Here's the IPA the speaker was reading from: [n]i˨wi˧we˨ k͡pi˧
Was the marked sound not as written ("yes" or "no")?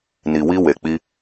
no